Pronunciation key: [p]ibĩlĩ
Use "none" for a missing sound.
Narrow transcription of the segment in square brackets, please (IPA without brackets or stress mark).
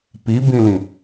p